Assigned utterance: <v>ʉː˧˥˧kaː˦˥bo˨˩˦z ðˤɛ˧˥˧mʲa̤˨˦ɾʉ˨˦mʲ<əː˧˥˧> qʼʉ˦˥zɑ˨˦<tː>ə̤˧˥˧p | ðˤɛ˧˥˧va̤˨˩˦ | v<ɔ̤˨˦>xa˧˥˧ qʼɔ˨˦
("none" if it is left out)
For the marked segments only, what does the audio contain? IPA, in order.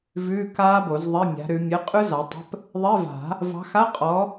v, ə˧˥˧, tˤ, ɑ̤˨˦

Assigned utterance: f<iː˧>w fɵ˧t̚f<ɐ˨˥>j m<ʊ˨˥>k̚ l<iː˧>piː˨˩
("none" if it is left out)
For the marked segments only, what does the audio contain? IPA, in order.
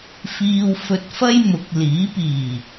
iː˧, ɐ˥, ʊ˨˥, iː˨˥

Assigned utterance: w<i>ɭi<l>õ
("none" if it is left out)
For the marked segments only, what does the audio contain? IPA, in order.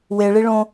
e, ɭ

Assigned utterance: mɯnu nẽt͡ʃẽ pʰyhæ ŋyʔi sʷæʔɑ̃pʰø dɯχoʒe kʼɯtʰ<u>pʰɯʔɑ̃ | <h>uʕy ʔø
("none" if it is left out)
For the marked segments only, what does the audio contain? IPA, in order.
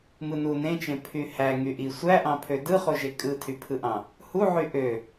y, h

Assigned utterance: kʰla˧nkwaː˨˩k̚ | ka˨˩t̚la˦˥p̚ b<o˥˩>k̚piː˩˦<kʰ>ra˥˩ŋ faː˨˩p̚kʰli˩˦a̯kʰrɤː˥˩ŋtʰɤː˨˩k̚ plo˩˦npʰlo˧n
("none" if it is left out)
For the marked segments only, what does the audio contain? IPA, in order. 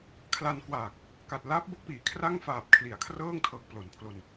o˥˩, kʰ

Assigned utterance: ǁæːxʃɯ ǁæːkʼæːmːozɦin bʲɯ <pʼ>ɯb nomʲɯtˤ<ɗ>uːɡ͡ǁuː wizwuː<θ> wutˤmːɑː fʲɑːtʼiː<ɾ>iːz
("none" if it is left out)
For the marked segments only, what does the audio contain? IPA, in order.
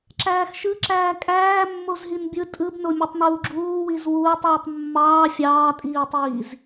tʼ, n, tˤ, tˤ

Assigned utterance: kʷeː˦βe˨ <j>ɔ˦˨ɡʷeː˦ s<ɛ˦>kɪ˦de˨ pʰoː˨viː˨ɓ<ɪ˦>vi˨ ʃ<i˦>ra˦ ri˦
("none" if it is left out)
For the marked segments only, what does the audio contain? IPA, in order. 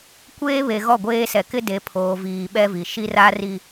ɣ, ɛ˨, ɛ˦, i˦

